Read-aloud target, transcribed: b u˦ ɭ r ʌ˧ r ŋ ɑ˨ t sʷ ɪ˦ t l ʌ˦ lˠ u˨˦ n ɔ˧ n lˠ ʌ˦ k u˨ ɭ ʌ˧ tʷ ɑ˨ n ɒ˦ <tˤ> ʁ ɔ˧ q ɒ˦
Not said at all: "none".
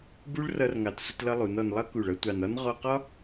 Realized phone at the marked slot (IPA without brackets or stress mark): n